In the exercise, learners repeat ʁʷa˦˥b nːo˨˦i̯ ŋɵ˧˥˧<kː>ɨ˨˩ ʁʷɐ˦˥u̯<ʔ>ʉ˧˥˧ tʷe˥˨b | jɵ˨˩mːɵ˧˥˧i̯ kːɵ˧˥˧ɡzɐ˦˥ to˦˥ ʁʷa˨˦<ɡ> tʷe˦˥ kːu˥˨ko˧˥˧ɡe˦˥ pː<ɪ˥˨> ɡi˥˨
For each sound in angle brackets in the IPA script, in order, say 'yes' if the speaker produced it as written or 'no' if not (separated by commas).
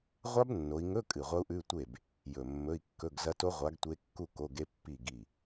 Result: no, yes, yes, no